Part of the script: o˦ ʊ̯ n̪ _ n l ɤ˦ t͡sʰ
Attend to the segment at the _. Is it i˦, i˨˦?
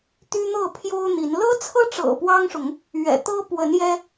i˨˦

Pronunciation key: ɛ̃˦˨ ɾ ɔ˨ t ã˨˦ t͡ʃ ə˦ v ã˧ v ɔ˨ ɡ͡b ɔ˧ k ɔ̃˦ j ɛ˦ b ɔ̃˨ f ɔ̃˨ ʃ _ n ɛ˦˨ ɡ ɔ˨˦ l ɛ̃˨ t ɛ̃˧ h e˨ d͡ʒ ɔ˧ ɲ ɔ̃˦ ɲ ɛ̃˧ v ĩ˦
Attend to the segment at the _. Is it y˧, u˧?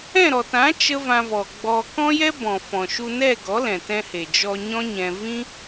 u˧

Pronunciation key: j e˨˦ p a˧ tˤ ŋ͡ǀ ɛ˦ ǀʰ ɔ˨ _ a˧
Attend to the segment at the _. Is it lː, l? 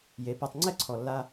lː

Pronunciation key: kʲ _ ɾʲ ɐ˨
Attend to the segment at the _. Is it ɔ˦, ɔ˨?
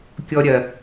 ɔ˨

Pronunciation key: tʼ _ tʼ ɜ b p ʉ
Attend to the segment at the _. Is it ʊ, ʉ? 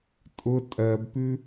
ʊ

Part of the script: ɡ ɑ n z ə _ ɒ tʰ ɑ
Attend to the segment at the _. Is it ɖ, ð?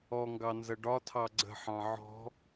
ɖ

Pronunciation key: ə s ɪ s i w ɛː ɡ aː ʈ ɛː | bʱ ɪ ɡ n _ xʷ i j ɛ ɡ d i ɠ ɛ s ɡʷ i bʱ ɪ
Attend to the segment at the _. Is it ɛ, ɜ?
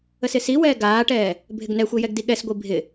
ɛ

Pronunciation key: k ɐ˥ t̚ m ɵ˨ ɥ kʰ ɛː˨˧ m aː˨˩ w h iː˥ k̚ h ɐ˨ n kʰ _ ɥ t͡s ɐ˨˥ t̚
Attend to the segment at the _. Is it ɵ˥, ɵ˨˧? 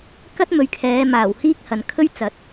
ɵ˥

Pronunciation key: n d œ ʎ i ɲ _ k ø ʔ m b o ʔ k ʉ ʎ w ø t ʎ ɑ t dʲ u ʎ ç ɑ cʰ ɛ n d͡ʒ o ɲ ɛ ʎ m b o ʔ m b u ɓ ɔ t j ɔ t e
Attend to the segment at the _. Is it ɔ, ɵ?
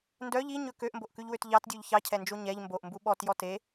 ɵ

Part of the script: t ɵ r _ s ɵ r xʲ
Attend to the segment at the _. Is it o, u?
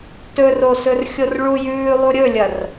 o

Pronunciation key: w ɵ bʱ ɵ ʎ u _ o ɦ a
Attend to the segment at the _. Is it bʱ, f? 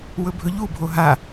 bʱ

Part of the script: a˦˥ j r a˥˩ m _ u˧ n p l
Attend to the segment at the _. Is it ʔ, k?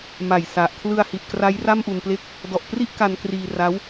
ʔ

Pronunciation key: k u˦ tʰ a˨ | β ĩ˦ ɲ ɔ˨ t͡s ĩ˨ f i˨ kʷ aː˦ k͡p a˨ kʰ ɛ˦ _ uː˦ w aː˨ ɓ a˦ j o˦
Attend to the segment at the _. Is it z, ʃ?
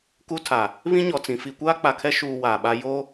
ʃ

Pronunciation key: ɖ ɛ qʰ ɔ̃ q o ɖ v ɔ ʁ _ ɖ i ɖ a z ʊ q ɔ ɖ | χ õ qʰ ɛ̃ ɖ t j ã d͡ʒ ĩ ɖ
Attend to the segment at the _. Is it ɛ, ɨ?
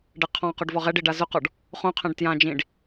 ɛ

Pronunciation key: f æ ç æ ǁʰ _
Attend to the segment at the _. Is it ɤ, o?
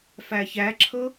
ɤ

